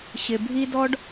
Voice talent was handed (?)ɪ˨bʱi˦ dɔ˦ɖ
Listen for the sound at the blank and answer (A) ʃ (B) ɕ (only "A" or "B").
B